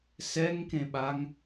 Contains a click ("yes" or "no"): no